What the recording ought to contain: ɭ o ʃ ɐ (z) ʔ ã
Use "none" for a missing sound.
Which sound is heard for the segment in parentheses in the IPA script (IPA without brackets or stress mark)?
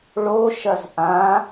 z